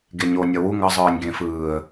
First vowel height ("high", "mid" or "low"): mid